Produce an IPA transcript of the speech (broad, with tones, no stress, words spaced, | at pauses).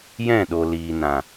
jɛ̃˦˨ɗo˨ liː˨nã˨